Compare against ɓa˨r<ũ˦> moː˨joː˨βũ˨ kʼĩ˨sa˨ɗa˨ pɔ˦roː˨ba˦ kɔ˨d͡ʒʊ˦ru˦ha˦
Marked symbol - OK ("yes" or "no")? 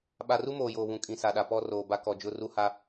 no